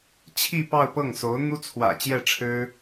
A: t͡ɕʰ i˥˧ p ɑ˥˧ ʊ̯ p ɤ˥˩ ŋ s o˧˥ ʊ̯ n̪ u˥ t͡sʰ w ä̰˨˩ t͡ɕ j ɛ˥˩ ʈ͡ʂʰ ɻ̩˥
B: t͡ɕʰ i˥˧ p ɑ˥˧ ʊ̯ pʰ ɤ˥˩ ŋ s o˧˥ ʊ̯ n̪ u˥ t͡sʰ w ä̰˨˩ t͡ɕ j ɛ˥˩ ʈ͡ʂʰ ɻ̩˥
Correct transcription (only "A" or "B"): A